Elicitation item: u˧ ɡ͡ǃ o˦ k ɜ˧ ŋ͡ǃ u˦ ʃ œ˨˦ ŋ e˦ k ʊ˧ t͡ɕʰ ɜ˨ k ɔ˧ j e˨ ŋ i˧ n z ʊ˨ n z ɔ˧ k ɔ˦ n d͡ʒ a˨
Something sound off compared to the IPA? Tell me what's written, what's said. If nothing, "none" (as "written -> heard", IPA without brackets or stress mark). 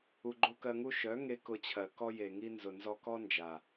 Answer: ŋ͡ǃ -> ŋ